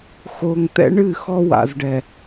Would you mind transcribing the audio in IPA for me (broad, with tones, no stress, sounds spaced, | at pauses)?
x o˨ ŋ t̪ ɛ̰˦ ɳ ɨ˦˨ x ɔ˦ w a̰˨ z ɖ ɛ˨